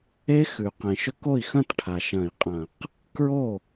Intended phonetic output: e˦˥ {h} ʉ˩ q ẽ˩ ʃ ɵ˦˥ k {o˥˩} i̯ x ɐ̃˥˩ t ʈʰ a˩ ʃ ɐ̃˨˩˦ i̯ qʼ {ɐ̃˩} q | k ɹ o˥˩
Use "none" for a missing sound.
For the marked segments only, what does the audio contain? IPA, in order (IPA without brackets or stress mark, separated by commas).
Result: x, o˥˩, ɐ̃˨˩˦